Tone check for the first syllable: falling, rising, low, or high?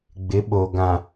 rising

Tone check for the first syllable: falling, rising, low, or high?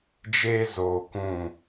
high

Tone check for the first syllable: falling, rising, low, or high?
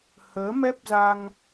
rising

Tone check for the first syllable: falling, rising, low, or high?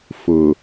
low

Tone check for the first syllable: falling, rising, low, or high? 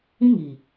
high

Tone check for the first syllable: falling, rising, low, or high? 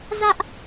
high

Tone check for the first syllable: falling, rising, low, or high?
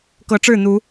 rising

